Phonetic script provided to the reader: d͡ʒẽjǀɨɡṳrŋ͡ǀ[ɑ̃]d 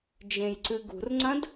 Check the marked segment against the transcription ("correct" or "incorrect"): incorrect